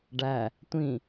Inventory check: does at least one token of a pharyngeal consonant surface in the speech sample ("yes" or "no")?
no